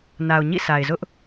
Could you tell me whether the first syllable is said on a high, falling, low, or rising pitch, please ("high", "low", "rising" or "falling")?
low